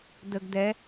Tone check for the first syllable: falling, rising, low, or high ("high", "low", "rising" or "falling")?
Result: low